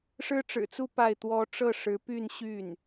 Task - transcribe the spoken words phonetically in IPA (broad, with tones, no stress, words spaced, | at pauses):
ʂɻ̩˥ʈ͡ʂɻ̩˨˩t͡su˥˧ pa˥˩ɪ̯t̪wɔ˥ ʈ͡ʂɤ˥˩ʂɻ̩˧˥ py˥˧n ɕy˥˩n